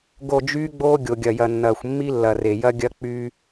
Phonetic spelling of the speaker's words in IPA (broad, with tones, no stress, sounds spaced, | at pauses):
ɡ o˨ d͡ʒ yː˦ ɡ͡b oː˦ ɡʲ o˨ ɡʲ ɐ˨ j ɐ˨ nː ɐː˨ xʷ mː i˦ lː ɐ˨ r e˨ j ɐ˦ ɡʲ ɐ˦ k͡p y˦